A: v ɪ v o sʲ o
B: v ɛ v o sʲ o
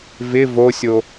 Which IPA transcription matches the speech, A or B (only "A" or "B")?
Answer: A